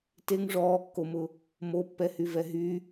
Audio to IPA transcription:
t e ŋ ʐ ɔː kː o m ʊ | m o pː ɛ h y v ɛ ɦ y

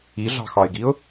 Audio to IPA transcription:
i ɮ ɑ̤ x ɒ ɪ̯ ɡ i ʊ̯

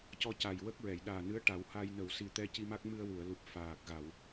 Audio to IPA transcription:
c ɔ˧ c a˨˩ j w ə˦˥ k̚ ɹ ɛ˨˩˨ j ɗ aː˨˩ n ɨ˧˥ ə̯ ʈ a˨˩˦ w h a˧ j n ə˨˩˨ w s i˨˩ t̪ ɛ˧ c i˧ m a˦˥ k̚ m ɨ˧ ə̯ w u˨˩˨ ə̯ l u˨˩ p̚ f aː˨˩ k̚ ɣ a˨˩˨ w

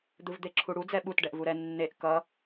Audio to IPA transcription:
d̪ ɯ v d̪ e ǁʰ u ɽ u d͡z ɛ ɓ u t ɖ ɛ ʔ v u ɾ ɛ nː e ʔ k ʌ

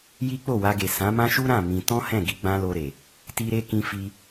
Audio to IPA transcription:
j i˦ k͡p o˦˨ w a˧ ɡ e˨ s ã˨˦ m ã˦ ʃ u˦ ɾ ã˦˨ m ĩ˧ t ɔ̃˦ h ɛ̃˦˨ ɡ i˧ ɡ͡b ã˦ l o˧ ɾ e˨ | t i˦ ɾ e˦ k ĩ˧ f i˧

